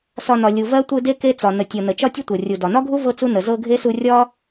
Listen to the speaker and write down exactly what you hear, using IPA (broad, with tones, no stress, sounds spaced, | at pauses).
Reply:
s ɒ˨ n ɒ˩ lʲ u˩ v ɜ˥ tʷ ɯ˦ d e˥ k e˦ t͡s ɒ˩ n ə˩ tʲ ɤ˩ n ə˩ t͡ʃ ɒ˦ tʲ ə˦ tʷ ɤ˩ rʲ u˩ d ɒ˩ n ɒ˥ ɡʱ u˥ v ɤ˥ t͡s u˥ n ə˩ z ɤ˦ ɡʱ e˥ s u˦ rʲ ɒ˥